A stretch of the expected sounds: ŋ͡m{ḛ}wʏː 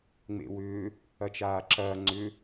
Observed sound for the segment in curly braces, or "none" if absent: ḛ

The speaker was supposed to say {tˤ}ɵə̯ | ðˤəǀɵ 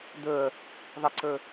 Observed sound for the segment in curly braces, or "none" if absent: d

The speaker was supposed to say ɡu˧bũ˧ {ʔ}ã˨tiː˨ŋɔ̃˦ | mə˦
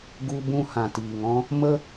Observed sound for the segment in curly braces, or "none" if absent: h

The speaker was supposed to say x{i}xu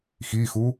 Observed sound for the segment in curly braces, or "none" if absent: i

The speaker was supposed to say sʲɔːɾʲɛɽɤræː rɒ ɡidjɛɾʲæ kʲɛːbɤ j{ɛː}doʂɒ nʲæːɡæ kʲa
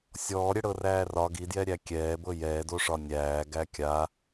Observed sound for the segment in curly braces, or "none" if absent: ɛː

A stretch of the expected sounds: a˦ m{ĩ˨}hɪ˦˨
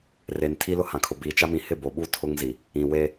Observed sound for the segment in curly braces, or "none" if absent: ĩ˨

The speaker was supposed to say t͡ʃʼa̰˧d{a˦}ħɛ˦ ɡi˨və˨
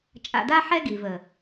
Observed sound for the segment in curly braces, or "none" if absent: a˦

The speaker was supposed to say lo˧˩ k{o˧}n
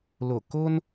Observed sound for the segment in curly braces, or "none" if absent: o˧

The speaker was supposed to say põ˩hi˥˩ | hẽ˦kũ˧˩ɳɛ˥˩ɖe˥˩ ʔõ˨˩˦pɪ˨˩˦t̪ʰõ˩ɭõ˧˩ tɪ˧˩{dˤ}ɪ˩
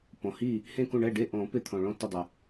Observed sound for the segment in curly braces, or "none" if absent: dˤ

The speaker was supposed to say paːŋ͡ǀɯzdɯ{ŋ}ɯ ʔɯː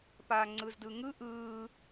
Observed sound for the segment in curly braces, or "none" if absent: ŋ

